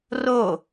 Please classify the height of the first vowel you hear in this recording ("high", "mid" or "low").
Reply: mid